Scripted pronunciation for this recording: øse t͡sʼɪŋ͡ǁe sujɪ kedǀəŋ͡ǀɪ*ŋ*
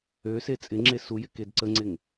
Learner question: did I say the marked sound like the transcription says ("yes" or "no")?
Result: yes